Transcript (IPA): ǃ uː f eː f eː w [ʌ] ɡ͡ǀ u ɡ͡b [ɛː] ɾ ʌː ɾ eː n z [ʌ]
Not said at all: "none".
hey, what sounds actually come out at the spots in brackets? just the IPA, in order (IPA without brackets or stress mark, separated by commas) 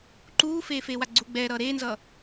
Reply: a, ɛː, ʌ